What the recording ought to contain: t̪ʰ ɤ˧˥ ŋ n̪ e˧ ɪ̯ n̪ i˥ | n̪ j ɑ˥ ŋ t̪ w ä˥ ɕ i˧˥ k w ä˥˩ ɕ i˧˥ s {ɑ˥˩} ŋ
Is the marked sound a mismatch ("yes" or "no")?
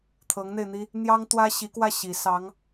yes